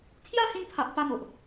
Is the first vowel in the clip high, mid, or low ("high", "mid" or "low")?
low